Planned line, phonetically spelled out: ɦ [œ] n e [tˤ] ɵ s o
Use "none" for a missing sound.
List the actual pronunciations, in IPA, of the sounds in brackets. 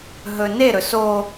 ɵ, ɾ

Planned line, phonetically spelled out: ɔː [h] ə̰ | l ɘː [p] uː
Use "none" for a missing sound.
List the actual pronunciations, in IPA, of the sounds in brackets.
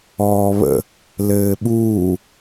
β, ɓ

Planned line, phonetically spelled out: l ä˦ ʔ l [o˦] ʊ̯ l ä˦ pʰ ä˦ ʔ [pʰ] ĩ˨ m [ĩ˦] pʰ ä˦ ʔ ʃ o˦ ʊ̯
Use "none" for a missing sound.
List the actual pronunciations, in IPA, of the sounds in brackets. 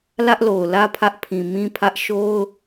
o˨, pʰ, ĩ˦

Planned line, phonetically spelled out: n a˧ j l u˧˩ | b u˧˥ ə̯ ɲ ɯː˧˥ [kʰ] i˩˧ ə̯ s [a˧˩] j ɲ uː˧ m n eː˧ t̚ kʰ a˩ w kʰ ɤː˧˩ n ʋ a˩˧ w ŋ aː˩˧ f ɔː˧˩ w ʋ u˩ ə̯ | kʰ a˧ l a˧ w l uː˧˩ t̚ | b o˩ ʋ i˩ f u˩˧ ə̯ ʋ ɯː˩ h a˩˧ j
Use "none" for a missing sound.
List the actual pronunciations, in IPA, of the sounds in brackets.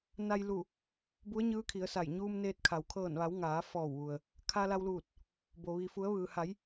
kʰ, a˧˩

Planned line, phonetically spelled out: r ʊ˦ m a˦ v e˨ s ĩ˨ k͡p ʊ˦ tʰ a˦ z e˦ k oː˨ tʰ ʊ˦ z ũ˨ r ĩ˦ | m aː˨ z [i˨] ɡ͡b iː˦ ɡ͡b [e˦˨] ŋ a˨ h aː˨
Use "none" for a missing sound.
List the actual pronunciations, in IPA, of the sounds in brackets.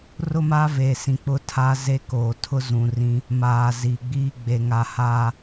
i˨, e˨

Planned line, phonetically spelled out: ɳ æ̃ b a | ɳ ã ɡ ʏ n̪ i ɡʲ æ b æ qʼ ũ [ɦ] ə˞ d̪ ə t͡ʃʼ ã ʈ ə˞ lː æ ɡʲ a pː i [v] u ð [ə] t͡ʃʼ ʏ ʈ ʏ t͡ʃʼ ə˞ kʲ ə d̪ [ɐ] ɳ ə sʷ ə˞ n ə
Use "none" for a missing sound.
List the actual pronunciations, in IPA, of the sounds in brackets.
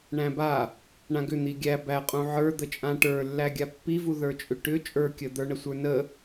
ʕ, v, ə˞, ə˞

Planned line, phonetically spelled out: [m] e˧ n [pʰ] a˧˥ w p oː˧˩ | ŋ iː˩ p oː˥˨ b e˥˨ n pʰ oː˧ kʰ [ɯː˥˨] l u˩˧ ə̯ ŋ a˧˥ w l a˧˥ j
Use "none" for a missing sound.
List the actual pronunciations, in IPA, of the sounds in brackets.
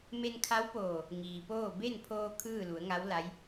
m, kʰ, ɯː˥˨

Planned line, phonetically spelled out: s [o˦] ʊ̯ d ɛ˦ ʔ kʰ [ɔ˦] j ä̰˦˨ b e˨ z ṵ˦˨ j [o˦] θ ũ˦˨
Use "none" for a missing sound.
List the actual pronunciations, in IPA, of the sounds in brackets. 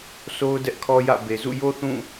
o˦, ɔ˦, o˦

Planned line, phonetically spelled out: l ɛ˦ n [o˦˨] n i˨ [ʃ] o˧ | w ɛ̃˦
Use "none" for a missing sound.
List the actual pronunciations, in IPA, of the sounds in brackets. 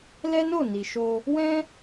o˦˨, ʃ

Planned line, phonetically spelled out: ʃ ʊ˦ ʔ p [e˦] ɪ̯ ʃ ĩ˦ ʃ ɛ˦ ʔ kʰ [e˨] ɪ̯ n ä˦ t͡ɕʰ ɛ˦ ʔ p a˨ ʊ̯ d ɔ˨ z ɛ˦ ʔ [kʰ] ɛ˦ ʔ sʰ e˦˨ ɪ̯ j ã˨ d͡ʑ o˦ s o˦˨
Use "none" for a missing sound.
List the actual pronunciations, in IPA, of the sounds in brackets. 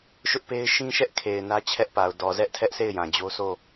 e˦, e˨, tʰ

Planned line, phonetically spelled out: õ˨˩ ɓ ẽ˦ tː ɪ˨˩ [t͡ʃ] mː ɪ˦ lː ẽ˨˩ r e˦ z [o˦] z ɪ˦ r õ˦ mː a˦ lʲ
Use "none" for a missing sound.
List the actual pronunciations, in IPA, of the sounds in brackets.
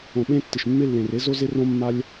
ʃ, o˦

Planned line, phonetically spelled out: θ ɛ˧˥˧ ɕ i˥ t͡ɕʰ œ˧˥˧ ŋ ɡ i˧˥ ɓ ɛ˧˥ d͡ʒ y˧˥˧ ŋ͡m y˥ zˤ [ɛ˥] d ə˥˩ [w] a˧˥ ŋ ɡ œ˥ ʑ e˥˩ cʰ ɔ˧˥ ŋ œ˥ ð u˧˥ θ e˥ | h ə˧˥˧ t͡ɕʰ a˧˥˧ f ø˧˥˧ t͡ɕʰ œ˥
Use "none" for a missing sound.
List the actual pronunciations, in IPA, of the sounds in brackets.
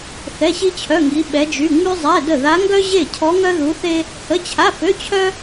ɛ˧˥˧, ð

